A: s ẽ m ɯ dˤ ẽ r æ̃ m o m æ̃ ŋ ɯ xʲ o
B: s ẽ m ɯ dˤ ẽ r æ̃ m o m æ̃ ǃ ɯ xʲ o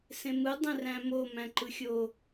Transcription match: B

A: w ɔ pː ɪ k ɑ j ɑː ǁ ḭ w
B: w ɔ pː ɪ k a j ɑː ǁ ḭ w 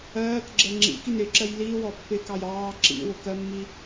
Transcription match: A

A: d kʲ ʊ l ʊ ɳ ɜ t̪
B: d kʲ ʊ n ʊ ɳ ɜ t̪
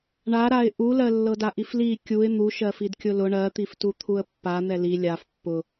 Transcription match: A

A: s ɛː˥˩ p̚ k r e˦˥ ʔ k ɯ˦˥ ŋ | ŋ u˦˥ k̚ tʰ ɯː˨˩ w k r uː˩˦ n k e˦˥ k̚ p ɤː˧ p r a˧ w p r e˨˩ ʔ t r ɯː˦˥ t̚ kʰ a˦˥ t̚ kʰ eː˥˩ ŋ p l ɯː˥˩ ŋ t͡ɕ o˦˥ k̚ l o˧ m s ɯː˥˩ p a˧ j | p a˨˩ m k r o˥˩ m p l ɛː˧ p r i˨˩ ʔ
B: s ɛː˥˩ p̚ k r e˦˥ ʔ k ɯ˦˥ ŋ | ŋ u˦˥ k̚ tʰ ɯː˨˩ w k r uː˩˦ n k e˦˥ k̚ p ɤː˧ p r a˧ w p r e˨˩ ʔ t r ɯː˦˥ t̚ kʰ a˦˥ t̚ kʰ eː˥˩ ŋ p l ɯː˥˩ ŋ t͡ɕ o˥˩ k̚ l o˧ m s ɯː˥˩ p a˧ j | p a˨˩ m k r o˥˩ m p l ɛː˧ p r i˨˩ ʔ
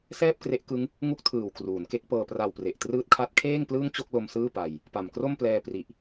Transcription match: B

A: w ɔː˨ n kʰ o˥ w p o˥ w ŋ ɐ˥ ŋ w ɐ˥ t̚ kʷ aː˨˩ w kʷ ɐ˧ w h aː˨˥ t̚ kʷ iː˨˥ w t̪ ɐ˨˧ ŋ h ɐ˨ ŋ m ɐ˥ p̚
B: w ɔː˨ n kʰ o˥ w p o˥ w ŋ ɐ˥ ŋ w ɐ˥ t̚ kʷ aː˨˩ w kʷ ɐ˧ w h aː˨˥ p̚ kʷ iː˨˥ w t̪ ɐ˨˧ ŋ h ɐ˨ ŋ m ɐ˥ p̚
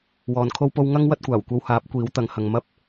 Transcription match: B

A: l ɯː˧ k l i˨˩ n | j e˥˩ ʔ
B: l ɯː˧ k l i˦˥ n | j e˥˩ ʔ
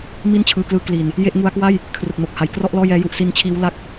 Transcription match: A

